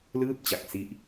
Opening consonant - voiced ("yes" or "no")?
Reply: yes